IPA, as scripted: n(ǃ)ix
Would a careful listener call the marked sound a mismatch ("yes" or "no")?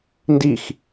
yes